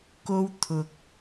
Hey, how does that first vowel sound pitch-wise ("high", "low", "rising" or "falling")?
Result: high